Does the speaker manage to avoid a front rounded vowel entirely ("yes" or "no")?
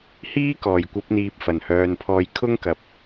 no